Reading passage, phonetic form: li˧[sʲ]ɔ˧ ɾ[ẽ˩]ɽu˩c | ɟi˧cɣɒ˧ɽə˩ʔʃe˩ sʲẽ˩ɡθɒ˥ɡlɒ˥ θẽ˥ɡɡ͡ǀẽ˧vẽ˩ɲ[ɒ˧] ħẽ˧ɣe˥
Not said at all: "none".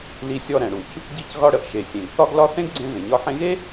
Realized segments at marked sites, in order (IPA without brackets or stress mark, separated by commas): sʲ, ɛ̃˩, ɒ˧